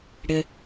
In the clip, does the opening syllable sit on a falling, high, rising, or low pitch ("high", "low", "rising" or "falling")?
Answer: low